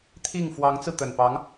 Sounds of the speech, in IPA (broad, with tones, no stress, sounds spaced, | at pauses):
t̪ʰ i˥˩ ŋ f w ɑ˧˥ ŋ t͡s ɹ̩˧ t̪ ə˨˩ n p ɑ˧˥ ŋ